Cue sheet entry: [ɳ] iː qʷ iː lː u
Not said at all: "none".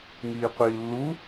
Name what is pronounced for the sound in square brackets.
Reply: ŋ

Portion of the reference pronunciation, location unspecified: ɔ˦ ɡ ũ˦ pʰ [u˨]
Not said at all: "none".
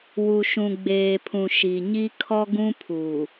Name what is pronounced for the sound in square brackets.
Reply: uː˨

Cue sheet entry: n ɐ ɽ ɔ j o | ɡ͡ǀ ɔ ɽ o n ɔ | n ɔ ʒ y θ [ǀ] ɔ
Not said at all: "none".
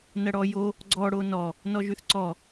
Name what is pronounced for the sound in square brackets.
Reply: ǀ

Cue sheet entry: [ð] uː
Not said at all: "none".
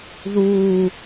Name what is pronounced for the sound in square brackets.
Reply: ð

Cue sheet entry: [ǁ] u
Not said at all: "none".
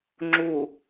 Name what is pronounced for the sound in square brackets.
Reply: ŋ͡ǁ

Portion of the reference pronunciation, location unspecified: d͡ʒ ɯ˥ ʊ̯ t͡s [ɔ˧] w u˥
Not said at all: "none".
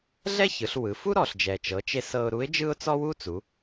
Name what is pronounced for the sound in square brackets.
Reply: ɔ˥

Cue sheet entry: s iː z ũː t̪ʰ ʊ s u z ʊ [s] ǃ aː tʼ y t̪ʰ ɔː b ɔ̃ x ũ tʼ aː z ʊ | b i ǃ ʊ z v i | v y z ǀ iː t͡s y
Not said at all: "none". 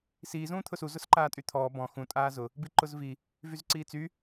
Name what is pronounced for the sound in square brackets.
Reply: s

